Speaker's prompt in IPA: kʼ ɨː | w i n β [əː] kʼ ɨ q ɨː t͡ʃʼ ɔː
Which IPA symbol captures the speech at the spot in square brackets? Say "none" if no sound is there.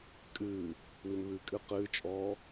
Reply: ɨː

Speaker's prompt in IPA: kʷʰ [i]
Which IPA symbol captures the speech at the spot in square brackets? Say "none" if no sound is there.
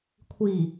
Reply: i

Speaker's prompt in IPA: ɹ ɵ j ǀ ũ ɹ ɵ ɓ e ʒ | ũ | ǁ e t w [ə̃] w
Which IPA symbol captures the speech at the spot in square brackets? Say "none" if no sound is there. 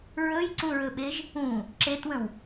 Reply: ə̃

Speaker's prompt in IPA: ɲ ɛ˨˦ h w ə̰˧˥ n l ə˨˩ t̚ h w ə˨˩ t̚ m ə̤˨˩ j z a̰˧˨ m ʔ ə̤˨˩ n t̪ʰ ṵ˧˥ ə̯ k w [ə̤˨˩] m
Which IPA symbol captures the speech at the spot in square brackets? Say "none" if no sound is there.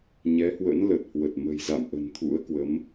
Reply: ə˨˦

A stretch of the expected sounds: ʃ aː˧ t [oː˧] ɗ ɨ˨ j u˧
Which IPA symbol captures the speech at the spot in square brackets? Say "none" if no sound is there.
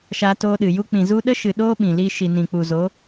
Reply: oː˧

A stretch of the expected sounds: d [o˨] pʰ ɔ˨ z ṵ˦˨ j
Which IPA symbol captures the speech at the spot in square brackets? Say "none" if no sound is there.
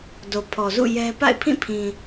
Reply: o˨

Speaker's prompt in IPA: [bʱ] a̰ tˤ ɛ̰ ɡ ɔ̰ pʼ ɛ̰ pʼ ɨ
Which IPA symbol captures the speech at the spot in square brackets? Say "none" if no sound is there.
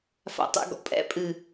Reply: f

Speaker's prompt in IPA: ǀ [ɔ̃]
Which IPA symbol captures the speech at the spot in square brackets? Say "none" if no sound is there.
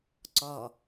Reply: ɔ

